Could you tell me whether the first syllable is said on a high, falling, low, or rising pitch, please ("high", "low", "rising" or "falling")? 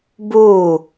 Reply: falling